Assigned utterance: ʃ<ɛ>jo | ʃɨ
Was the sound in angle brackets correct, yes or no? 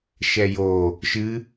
yes